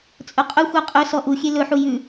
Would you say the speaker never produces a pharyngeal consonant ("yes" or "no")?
no